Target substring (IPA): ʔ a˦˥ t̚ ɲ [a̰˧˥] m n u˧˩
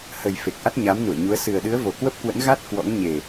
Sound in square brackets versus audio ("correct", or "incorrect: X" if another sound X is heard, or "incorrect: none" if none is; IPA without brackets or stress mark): incorrect: a˨˦